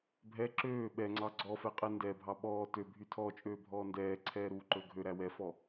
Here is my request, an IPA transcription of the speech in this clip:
bʱɛ ǁøː ɓɛŋ͡ǀɑ ɡ͡ǀɔfɛqʼɛ ndɛbʱɑ ɓɔː tøbʱy tʰɔt͡ʃʼøːbʱɔː ndɛːǀʰɛːɾuːǃɵ ɡʱøɾæ wɛfɔ

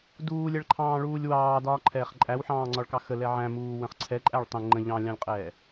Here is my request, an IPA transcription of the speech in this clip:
duːlʲɛɭǃʰɑ̃ːɭuːlʲ wɑː dɒːǃʰɛːχǃʼæwħɑ̃ː ŋ͡ǀɒɭkɑxə lɛʕæ̃ muːwə̃χǀʰɛ ǃʼæɭtˤə̃ ŋ͡ǃə̃ ʎɑ̃lʲɑ̃lʲqʼɛː

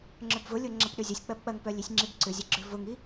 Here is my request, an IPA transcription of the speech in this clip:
ŋ͡ǁœbvʊlʲo ŋ͡ǁɐpɗʏzʲɐsʲ k͡pɐbk͡pɐŋpœlʲisʲ ŋ͡ǁibǀʏzʲɐɡ͡ǁʏ vʊŋi

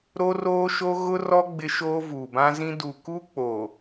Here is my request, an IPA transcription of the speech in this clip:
ɾo˦roː˦ʃo˦ ɣʊ˦rɔ˦ ɡ͡bɪ˦ʃoː˦ vuː˨bã˦zĩ˦ du˨ku˦k͡poː˨

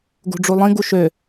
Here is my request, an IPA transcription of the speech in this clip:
ɡṳɖ͡ʐulˠĩ ɡuʃø

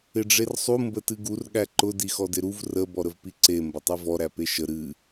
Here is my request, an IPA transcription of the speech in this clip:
ɪɖ͡ʐersˤu mbətɨɡur ɠæǃʊ dixɔdɪɾuv rə bɔɾəvpiǀe mbətˤivɔ ɾæpeʃə ɾɨ

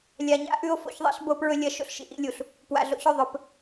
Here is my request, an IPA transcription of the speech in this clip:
lʲa˨ɲa̰˦ ʔʉ˦o̯ fo̰˦çðˤḭ˦ɬ bo˦pɹɵ˦lʲɐ˦ ʃo̰˦ɬʃḭ˨ʔḭ˦lʲu˨ɬ | pwa̰˨ɮo̰˦çɵ˦˨ðˤɵ˨p

